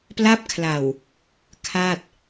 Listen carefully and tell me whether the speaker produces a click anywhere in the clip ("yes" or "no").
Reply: no